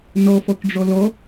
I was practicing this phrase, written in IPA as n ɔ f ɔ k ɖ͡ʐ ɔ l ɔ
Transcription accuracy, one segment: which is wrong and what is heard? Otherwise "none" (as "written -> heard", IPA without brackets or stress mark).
none